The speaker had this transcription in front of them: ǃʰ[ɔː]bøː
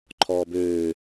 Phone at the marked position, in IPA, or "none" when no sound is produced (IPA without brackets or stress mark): ɔː